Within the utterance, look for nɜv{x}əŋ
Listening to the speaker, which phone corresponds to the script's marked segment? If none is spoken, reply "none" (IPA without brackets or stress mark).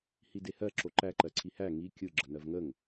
ŋ